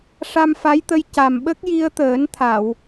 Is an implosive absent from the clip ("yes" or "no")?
no